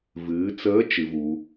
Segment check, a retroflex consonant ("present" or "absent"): absent